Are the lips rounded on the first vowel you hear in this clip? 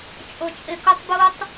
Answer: yes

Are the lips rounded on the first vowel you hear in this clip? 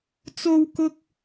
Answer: yes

